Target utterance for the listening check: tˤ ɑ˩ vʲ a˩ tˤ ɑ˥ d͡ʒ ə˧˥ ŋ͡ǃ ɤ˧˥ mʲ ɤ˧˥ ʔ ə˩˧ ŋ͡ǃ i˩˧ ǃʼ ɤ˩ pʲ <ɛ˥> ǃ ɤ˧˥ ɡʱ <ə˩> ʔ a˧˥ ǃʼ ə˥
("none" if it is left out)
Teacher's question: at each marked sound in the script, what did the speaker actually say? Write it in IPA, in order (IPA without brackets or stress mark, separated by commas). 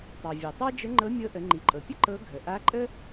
ə˥, ə˩